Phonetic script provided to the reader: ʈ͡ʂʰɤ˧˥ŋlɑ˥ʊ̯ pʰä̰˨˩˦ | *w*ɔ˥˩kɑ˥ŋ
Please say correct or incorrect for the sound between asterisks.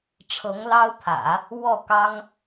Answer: correct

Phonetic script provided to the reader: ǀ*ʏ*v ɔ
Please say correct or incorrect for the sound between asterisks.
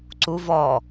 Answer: incorrect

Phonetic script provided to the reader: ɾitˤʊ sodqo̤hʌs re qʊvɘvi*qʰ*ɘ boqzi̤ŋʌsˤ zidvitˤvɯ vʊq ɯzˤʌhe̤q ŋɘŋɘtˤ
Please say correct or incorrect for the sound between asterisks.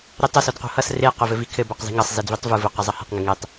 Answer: incorrect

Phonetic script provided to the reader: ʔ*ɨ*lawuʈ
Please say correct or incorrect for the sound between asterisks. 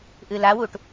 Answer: correct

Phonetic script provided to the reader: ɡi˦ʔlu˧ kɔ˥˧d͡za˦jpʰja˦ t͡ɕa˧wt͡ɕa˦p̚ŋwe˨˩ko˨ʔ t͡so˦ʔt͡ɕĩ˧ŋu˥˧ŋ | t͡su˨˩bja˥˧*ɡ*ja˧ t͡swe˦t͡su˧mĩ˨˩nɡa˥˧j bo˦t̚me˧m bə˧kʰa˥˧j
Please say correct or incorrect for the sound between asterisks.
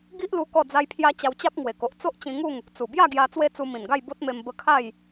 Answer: correct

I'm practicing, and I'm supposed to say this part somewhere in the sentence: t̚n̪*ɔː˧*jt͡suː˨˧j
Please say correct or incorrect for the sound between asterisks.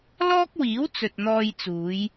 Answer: correct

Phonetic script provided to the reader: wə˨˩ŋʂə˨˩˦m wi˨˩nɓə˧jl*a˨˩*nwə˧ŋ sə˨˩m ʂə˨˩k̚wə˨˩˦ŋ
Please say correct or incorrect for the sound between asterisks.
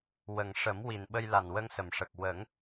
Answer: correct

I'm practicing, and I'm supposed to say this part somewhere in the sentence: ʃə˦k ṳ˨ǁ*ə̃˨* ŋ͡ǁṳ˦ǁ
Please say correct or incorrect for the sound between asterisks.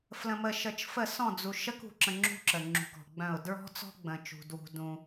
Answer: correct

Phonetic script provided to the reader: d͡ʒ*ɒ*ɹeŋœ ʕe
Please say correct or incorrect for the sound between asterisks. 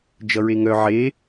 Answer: incorrect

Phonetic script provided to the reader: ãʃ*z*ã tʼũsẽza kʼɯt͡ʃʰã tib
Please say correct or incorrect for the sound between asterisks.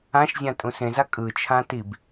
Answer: incorrect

